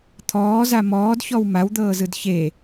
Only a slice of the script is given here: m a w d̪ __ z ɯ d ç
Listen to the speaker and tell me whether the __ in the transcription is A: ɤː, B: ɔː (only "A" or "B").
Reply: A